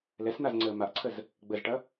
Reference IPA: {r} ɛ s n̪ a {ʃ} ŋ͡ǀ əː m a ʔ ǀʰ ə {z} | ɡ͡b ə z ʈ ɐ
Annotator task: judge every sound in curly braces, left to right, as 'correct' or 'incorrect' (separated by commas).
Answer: incorrect, incorrect, correct